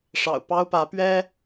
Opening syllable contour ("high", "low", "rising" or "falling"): low